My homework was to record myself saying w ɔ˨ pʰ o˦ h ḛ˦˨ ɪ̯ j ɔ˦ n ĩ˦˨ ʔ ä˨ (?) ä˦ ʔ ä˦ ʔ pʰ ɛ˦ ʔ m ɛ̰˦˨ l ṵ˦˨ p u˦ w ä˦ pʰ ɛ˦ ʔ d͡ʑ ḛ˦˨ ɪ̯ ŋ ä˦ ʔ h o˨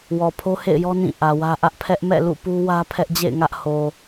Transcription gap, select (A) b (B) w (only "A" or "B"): B